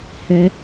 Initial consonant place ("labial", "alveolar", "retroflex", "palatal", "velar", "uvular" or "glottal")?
glottal